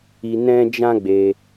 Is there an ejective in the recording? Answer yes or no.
no